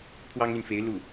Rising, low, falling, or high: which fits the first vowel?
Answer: high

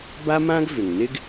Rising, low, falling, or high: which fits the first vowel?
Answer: high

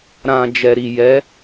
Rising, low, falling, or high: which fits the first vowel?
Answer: low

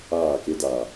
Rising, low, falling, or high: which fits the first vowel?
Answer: falling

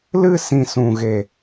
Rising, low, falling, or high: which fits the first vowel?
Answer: falling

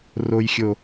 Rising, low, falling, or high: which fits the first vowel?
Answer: low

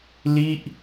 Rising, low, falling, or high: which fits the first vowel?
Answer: falling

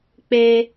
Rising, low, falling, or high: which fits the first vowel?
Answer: high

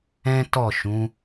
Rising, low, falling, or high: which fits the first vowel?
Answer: high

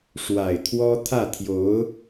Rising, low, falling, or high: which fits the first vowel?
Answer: low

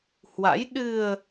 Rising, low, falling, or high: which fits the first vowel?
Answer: rising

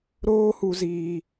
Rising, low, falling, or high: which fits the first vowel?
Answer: high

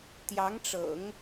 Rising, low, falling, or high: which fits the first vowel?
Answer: rising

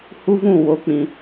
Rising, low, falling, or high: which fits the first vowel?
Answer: high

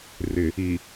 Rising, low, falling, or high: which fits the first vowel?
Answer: low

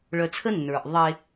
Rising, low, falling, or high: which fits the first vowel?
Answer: low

